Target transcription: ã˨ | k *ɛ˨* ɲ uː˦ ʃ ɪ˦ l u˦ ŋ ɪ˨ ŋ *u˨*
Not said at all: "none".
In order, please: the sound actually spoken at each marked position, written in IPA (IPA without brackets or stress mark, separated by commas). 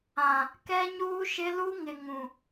ɛ˦, ũ˨